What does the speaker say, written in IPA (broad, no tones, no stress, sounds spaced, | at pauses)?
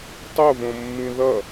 tˤ o v õ mː ĩ ð ʌ